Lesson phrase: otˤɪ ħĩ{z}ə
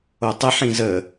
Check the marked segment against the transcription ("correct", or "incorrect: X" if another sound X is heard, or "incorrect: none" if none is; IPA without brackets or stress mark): correct